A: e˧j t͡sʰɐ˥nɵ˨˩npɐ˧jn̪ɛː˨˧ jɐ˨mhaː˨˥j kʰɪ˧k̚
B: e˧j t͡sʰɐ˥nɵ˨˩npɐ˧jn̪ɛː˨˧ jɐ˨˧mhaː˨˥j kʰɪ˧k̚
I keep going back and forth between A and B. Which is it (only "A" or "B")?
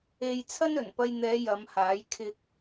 B